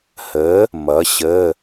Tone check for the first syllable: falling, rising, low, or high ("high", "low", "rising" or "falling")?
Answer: rising